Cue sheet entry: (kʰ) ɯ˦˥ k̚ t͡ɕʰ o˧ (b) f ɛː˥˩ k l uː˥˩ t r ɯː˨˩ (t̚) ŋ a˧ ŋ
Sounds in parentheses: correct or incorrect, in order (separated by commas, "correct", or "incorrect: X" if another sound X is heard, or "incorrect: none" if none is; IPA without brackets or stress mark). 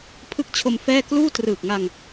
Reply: incorrect: pʰ, incorrect: m, incorrect: k̚